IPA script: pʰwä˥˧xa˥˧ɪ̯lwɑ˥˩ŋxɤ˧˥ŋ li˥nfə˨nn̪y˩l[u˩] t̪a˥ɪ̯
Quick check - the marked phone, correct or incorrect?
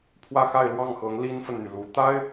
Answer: incorrect: u˧˥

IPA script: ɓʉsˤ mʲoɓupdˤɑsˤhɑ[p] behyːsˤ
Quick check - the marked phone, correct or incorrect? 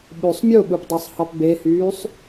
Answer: correct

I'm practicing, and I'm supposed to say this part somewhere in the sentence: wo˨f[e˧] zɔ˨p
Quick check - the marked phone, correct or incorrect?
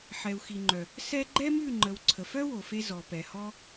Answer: correct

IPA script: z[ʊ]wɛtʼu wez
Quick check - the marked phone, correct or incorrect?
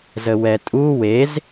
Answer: incorrect: ə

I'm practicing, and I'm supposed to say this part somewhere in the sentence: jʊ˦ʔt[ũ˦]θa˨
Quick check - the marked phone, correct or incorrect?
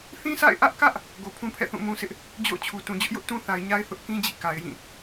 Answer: correct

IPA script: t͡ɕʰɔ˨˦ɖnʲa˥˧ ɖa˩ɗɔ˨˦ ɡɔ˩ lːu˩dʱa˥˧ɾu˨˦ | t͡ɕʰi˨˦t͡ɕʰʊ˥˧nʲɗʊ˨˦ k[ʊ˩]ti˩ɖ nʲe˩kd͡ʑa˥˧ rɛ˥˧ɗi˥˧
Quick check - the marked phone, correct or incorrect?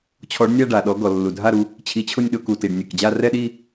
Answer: incorrect: u˩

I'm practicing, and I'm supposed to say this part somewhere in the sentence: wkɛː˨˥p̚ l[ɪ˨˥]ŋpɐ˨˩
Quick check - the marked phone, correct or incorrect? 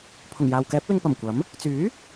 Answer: incorrect: ɪ˧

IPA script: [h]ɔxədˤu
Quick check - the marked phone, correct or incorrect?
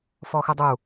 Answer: incorrect: f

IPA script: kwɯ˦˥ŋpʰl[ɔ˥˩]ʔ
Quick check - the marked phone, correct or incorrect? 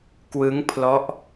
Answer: incorrect: ɔ˦˥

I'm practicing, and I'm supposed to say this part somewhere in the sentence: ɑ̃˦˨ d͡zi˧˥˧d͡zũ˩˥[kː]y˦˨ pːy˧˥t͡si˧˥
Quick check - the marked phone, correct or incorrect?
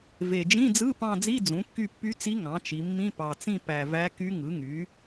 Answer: correct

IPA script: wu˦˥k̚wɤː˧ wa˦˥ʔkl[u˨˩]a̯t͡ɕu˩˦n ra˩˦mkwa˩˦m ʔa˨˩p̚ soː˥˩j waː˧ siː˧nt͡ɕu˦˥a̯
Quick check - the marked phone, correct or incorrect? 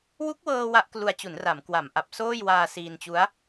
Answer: incorrect: u˧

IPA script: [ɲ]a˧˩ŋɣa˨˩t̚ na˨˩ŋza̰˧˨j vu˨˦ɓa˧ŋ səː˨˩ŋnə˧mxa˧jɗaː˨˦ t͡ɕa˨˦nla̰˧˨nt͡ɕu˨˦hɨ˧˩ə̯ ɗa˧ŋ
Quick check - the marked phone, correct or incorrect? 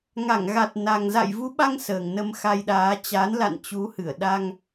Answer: incorrect: ŋ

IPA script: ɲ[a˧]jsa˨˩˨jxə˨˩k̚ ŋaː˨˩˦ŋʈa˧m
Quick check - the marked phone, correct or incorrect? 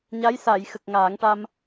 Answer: incorrect: a˧˥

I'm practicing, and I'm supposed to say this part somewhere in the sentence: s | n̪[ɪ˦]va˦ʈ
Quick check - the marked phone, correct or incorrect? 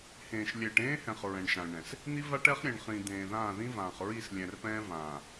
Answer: incorrect: i˦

